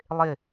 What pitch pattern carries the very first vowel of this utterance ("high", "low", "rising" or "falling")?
falling